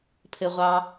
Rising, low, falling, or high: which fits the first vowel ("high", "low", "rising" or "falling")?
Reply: high